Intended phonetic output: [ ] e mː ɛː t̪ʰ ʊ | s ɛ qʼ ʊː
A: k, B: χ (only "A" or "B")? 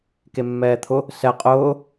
A